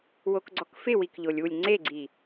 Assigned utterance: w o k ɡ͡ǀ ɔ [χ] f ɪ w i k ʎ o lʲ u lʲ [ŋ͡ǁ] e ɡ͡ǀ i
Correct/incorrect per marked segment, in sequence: incorrect, incorrect

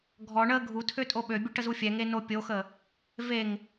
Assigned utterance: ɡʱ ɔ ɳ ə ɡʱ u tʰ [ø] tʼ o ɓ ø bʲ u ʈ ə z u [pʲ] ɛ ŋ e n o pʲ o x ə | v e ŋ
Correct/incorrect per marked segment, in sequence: correct, incorrect

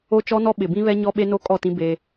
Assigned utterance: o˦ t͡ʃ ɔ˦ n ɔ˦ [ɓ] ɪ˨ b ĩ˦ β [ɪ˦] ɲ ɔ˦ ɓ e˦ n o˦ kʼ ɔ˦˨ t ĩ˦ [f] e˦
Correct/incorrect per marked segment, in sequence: correct, incorrect, incorrect

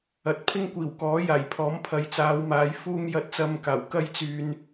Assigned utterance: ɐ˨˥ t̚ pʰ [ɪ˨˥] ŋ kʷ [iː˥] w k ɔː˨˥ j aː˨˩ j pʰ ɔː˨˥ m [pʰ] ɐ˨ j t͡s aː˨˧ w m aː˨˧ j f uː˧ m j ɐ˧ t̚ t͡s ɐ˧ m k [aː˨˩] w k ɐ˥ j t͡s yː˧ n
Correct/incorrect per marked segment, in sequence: incorrect, incorrect, correct, correct

